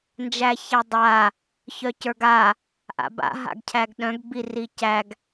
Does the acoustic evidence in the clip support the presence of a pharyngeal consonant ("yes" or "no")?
no